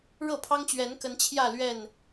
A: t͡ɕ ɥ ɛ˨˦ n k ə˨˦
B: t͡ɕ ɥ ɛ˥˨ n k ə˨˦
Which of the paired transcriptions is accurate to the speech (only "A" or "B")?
A